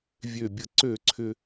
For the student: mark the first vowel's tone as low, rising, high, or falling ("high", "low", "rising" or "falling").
falling